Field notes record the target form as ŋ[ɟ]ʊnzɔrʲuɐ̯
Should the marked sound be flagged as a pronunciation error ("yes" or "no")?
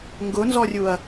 yes